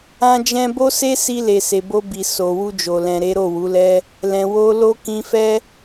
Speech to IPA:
ã˦d͡ʒɛ̃˦ bo˦se˦si˧ le˨se˨bo˧bi˨ so˨wu˧d͡ʒo˨lɛ̃˨ ɾe˨˦ɾo˦˨wu˨˦lɛ˦ | lɛ̃˨wo˧lo˦ kĩ˧fɛ˦

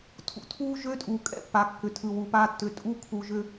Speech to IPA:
tʰṵ˨tʰuː˦ ʒø˦tʼuː˨ kʼɛ̰˦pːa˨ kːʏ˨tʰɯ˨wu˨paː˦ tːʏ˨ tʼu˦ kʰu˨ʒʏ˦

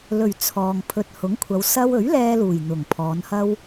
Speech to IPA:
lɵ˨˩ɥ t͡sʰɔː˨ŋ pʰɵ˨t̚hʊ˨˥ŋkʷʰɐ˨˧w sɐ˥w ɵ˨˥ɥlɛː˧luː˨˩j n̪ʊ˨˩ŋpʰɔː˨˧nhɐ˥w

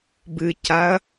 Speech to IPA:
bɨcaɐ̯

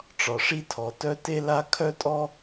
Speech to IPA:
ʈ͡ʂɒ˩ʂi˥tʰɔ˩tœ˥ te˥la˥ kʰœ˥tʼɔ˥

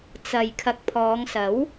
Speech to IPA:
t͡sɐ˨j kʰɐ˨˥k̚pʰɔː˨˧ŋsɐ˨˥w

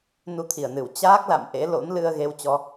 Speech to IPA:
nu˧t̪ʰi˧˩ə̯nɨ˧˩w t͡ɕaː˦˥k̚ la̰˧˨m ʔḛ˧˥lo̰˧˥n lɨ˧ə̯ ɣe˧wt͡ɕɔ˧

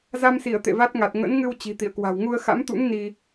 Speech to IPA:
za˧msi˧˩ə̯ t̪ḛ˧˨va˦˥t̚ŋa˨˩t̚ ŋə̰˧˥nŋɨ˧w t͡ɕi̤˨˩t̪ḭ˧˨ə̯kwa̤˨˩w ŋu˧ə̯xa̰˧˥mt̪ṵ˧˥ŋ ni˧

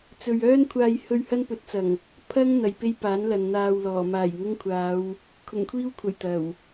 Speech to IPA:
t͡sɵ˨ɥœː˥n kʷʰaː˧jhɵ˧ɥ hɐ˥npɵ˨˥t̚t͡sɐ˨˩ŋ | pʰɐ˥ŋ n̪ɐ˨jpe˥jpaː˨˥n lɐ˨nn̪aː˧wlɔː˨˩ maː˨˩jŋʊ˥ŋkʷʰaː˨˧w | kʰʊ˨˩ŋkʷʰiː˥wkʷʰɐ˨˩j t̪ɐ˨˩w

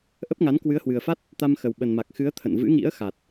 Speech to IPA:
ʔə˦˥p̚ŋa˨˦n kwɨ˨˦ə̯hwɨ˨˩ə̯fa˦˥t̚ | t̪a˧mxə˨˩w ɓə˨˩nma˨˩k̚xɨ˨˦ə̯ t̪ʰə̰˧˨nvɨ̰˧˥ŋḭ˧˥ə̯ xa˨˩t̚

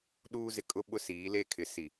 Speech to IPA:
ɗuː˦zɪ˨ kʼʊ˦ ɓʊ˦siː˨˦le˦˨ kʰɪ˨si˨

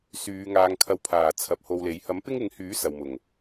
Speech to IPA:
syː˨˧ŋaː˨˧ŋkʰɐ˧wpʰaː˨˩ t͡sʰɐ˨˥p̚ho˧wle˨˥j hɐ˨˥mpɪ˥ŋɪ˨˥ŋhyː˨˥ sɐ˨wmʊ˨˩ŋ

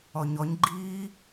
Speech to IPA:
ɔɲɔɲɡ͡ǃiː

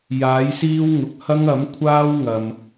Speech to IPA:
jaː˨˥jsiː˥wŋʊ˨k̚ hɐ˥ŋɐ˨˥mkʷʰaː˥w ŋɐ˨m

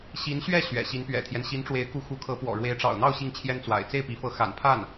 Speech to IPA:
ɕi˧˥nɕɥɛ˥˩ ɕɥɛ̰˨˩ɕi˧˥npɥɛ̰˨˩t̪ʰjɛ˦n ɕi˧˥nʈ͡ʂwe˧˥ɪ̯ku˧˥ xu˧˥kʰɤ˧˥pwɔ̰˨˩ ɻwe˧˥ɪ̯ʈ͡ʂɑ̰˨˩ʊ̯n̪ɑ˥˧ʊ̯ ɕi˥˩ŋt͡ɕʰjɛ˥nt͡swa̰˨˩ɪ̯ t͡se˥˩ɪ̯pi˧˥fɤ˧˥ xa̰˨˩npʰa˥˩n

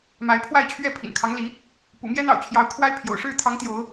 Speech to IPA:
ma˨˦ɪ̯pʰwa˥˨ɪ̯t͡ɕʰɥɛ˥˨ pʰḭ˨˩nkʰɑ˦ŋli˨˦ | pṵ˨˩mjɛ˦n̪ɑ̰˨˩ʊ̯t͡ɕʰjɑ˨˦ʊ̯ kʰwa˦ɪ̯ pʰjo̰˨˩ʊ̯ʂɻ̩˥˨ t̪ʰɑ˨˦ŋ t̪jo˨˦ʊ̯

